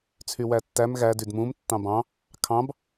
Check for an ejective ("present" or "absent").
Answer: absent